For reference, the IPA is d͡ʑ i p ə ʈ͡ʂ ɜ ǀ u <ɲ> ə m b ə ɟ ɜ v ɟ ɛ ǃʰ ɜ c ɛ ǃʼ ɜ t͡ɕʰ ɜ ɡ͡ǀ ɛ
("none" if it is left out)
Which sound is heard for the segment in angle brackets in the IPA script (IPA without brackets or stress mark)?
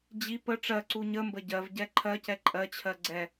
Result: ɲ